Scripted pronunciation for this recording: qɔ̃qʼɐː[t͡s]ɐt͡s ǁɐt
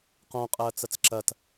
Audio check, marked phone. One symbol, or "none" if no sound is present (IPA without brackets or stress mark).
t͡s